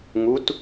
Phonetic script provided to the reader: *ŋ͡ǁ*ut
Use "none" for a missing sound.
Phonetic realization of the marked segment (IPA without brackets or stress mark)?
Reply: ŋ